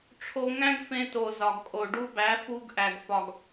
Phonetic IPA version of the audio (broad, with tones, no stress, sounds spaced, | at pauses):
ʈ͡ʂʰ o˧ ŋ æ̃˦ ɡ f ẽ˧ t o˨ z ɒ˨ ɡ kʼ o˨ ɖ u˧ b æ˨˦ f u˧ ɡ ʔ æ˨ ɡ f ɒ˨ ɡ